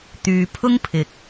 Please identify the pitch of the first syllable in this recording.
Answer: low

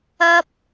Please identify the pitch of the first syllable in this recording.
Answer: high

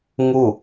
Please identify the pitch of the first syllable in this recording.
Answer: falling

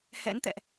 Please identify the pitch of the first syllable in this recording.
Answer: rising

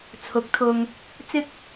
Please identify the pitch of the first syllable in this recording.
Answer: rising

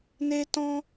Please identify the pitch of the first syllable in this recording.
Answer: high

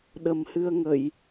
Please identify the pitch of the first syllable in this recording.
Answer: low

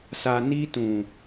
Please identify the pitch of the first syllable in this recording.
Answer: low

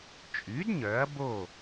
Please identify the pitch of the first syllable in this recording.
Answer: rising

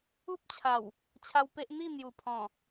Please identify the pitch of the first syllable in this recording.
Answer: high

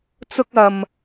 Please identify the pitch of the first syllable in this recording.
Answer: high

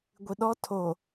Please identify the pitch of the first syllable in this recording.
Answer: low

